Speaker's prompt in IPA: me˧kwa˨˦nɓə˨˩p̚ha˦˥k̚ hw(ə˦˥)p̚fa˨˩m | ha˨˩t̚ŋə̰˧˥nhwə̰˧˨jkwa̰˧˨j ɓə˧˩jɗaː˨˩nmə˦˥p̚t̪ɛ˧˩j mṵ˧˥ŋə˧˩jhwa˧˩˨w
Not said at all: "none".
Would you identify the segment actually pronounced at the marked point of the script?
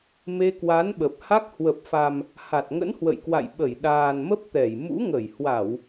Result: ə˨˩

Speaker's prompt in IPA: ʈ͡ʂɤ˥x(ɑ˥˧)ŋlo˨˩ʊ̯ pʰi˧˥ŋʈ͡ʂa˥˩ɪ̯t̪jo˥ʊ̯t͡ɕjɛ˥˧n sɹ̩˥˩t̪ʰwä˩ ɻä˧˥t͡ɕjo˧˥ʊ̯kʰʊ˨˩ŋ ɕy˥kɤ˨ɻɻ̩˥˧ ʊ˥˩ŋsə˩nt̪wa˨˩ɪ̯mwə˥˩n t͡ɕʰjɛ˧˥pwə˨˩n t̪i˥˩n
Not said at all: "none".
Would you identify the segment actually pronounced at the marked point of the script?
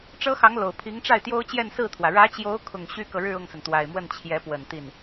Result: ɑ˧˥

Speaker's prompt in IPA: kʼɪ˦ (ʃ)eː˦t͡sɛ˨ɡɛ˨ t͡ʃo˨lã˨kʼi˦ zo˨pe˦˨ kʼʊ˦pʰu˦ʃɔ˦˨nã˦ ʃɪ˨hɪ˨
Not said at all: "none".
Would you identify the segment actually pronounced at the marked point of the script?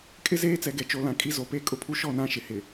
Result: z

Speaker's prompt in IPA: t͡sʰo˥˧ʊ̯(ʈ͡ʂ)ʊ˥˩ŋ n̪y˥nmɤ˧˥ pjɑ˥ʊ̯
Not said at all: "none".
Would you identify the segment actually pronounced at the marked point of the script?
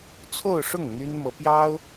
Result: ʂ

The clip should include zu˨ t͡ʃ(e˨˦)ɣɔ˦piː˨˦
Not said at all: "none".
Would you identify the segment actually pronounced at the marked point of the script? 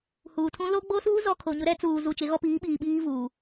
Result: e˨˦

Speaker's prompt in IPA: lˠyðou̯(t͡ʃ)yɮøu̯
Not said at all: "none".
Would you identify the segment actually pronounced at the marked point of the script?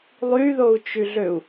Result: t͡ʃ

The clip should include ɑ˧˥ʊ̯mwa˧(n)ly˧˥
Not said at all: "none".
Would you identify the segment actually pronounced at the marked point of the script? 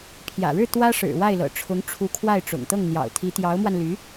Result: n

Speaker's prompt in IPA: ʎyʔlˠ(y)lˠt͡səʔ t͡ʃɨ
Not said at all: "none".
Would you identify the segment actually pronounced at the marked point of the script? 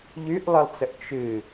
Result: ɨ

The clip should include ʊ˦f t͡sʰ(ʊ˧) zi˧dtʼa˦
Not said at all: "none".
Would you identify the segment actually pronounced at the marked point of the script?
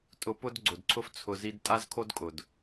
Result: ʊ˧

